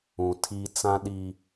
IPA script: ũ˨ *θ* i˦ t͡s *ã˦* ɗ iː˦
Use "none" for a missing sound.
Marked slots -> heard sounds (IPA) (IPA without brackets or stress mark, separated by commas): tʰ, ã˦